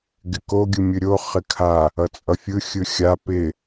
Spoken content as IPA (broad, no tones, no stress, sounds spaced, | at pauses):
ɡ ɪ k o ɡʲ ɯ mʲ ɯ ɾʲ o χ ɪ kʰ a | ʌ t͡sʼ ʌ fʲ ɯ xʲ ɯ xʲ a p ɪ